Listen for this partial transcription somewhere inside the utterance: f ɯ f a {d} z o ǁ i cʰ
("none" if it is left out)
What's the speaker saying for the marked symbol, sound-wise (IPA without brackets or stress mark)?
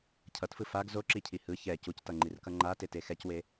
ɡ